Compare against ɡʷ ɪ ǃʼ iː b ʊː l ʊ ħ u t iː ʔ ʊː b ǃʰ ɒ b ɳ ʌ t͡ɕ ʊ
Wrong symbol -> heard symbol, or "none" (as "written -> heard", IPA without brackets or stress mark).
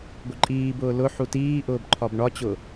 ʌ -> ɒ